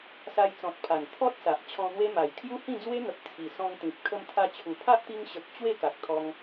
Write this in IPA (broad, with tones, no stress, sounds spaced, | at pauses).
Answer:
s a˧ j t͡s ɔ̃˨ t̚ pʰ a˨˩ n t̪ʰ ɔ˦ t̚ s a˨ ʔ t͡ɕʰ ɔ̃˧ n̪ w e˦ m a˨˩ j kʰ j u˦ h ĩ˥˧ d͡z w e˦ n̪ ə˨ p̚ t͡sʰ i˨˩ s ɔ̃˧ ŋ t̪ ĩ˨ p̚ kʰ ə˧ m t̪ʰ a˧ t͡ɕʰ u˨˩ pʰ a˦ ʔ t̪ i˧ ŋ ɕ ə˨ k̚ t͡ɕ w e˥˧ k a˨ k̚ t̪ʰ ɔ˧ ŋ